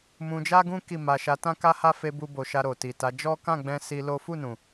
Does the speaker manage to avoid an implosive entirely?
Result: yes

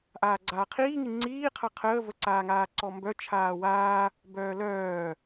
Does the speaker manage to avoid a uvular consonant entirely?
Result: no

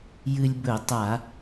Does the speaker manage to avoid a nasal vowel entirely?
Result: yes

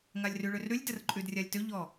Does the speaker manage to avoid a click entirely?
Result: no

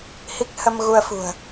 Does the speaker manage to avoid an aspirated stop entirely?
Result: yes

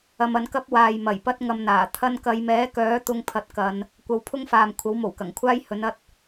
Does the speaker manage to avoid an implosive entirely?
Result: yes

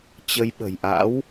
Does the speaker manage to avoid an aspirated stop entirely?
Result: yes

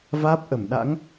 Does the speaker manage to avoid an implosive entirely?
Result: no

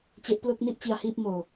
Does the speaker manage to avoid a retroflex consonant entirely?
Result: yes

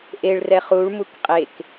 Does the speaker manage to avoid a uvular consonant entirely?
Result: no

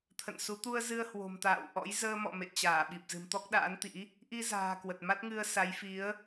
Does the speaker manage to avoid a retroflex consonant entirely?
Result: yes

